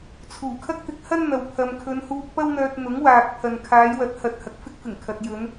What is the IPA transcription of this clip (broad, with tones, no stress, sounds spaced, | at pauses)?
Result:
t͡sʰ uː˨˩ kʰ ɐ˥ k̚ t̪ ɪ˨˥ k̚ h ɐ˥ n n̪ ɐ˨ w pʰ ɐ˨ m kʰ ɵ˨˧ n h uː˧ k̚ p ɐ˥ w n̪ œː˧ t̚ n̪ ʊ˨˥ ŋ w aː˨ k̚ pʰ ɐ˨ n kʰ aː˨˧ j w ɐ˨˥ t̚ h ɐ˨ t̚ h ɐ˨ k̚ f ɪ˥ k̚ f ɪ˨˩ ŋ kʰ ɐ˨ t̚ j ɵ˨˧ n